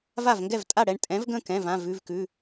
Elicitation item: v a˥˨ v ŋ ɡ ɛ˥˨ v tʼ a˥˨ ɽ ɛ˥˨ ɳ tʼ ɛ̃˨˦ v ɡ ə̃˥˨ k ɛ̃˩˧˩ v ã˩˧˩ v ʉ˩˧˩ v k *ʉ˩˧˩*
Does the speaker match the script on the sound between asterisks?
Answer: yes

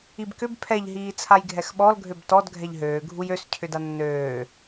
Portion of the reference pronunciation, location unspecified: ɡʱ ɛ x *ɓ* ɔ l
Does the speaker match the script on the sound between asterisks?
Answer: yes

